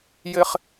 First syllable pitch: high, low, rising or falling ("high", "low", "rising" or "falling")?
high